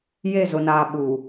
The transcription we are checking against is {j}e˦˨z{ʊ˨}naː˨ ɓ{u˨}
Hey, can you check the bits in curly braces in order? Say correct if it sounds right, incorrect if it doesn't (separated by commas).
correct, correct, correct